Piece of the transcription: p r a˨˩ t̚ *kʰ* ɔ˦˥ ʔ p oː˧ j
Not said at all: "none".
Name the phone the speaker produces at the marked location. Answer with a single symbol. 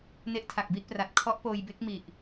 kʰ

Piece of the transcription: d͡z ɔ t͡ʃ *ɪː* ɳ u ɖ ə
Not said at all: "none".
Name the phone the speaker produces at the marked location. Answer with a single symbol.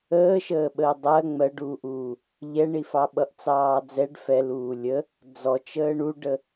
əː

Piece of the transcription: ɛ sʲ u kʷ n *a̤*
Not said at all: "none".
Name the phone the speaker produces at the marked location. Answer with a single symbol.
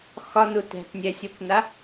a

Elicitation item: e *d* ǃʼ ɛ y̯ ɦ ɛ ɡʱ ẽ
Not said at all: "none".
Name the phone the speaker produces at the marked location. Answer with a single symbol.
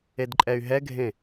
d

